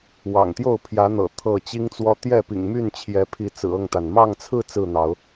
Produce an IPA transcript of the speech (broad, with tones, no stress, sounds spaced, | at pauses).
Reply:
w ɑ̰˨˩ ŋ t̪ j o˥˨ ʊ̯ pʰ j ä˨˦ n̪ ɤ̰˨˩ t̪ʰ ɤ˥˨ t͡ɕ i˦ ŋ t͡s w ɔ˦ t̪ j ɛ˥˨ p ḭ˨˩ ŋ m y˥˨ n t͡ɕʰ j ɛ˨˦ pʰ i˨˦ t͡s ɹ̩˨˩ ɤ˥˨ ŋ t̪ a˩ n m ɑ˥˨ ŋ t͡sʰ ɹ̩˥˨ t͡s ɹ̩˥˨ n̪ ɑ˨˦ ʊ̯